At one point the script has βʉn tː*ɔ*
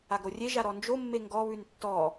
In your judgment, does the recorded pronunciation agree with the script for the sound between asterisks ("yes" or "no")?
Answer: yes